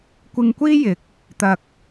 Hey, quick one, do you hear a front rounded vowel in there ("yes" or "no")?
no